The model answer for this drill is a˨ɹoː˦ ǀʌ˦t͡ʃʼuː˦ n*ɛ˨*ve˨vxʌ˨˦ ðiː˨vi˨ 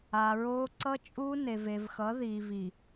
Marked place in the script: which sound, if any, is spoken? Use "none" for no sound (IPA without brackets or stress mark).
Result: e˨